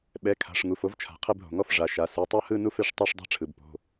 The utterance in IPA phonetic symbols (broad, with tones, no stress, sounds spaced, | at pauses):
ɓ ɛ˩˧˩ kʰ a̤˩˧˩ ʂ ŋ u˩˧˩ f o˥˧ v t͡ʃʰ a̤˩˧˩ qʰ e˥˧ b ɦ o̤˩˧˩ ŋ ɔ˥˧ f ʐ a˩˧˩ ʃ a˩˧˩ s u˩˧˩ tˤ o˥˧ h ɯ˥˧ n u˥˧ f e˩˧˩ ʂ tˤ a˥˧ ʂ dˤ a̤˥˧ ʈ͡ʂʰ ɯ˩˧˩ b p o̤˩˧˩